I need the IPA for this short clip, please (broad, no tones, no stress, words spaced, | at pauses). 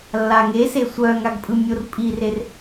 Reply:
lːaŋese sʷœŋaɡ pʼɯmʲorpʼirer